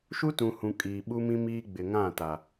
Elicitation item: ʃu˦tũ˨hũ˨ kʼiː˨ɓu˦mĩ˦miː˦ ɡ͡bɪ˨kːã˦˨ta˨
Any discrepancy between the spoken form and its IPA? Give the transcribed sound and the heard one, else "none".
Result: kː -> ŋ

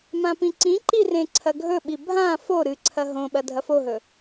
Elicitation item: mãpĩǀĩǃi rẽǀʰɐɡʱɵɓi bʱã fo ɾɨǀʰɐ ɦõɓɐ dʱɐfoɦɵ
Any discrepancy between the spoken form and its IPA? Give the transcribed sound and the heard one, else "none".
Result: none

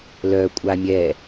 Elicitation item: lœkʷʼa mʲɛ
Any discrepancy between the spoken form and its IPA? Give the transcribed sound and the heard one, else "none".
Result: none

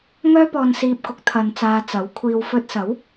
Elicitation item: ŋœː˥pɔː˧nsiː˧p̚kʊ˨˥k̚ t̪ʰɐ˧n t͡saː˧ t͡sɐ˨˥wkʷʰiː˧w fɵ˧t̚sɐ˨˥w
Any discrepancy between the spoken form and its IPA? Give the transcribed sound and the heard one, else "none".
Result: none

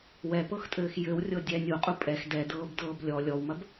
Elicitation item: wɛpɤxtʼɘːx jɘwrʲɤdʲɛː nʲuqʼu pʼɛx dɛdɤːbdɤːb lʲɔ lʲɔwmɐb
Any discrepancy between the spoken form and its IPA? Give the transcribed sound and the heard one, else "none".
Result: none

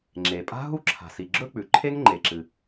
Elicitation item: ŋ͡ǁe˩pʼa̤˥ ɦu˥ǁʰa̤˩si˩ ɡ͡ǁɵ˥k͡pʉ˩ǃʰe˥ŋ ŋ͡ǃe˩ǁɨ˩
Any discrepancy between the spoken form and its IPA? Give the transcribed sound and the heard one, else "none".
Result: none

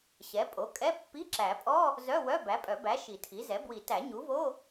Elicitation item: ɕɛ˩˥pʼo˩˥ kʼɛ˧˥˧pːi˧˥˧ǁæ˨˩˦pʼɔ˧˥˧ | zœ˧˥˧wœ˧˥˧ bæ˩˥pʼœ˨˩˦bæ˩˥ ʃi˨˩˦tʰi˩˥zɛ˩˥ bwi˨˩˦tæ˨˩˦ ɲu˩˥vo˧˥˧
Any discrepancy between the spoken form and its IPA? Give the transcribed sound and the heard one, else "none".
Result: none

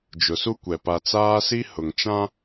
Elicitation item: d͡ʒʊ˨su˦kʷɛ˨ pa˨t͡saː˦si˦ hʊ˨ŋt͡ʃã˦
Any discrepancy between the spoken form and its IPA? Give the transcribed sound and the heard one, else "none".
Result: none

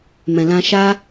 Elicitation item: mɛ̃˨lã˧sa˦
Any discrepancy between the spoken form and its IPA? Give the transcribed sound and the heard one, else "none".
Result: s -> ʃ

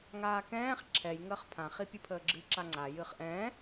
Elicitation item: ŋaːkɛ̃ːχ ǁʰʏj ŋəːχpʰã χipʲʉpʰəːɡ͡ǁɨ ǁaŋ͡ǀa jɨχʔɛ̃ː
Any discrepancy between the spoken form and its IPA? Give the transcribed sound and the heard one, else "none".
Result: ʏ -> ɛ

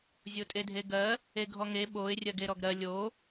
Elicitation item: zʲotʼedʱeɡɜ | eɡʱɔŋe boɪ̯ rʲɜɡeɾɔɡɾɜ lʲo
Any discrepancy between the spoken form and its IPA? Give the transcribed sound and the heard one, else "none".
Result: b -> ɓ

